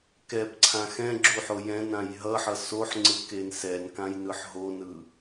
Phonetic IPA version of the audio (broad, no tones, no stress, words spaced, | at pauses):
kɛpǀʰã xɛ̃ɡ͡ǁuħo jɛ̃nãj ɦʌħʌ soħŋ͡ǀɯken sɛnkãjnɯħ ɦonɯ